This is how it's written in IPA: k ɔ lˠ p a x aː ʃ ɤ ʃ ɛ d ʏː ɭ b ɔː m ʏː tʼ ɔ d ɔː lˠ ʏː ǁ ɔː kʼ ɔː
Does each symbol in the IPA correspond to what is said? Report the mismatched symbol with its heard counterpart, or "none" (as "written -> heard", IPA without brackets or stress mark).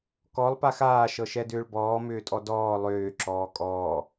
none